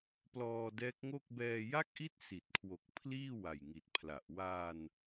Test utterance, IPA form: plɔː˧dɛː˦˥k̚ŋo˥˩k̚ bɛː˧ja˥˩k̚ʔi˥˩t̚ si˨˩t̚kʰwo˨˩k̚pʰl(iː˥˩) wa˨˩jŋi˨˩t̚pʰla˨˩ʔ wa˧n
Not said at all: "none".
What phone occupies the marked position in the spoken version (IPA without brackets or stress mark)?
iː˥˩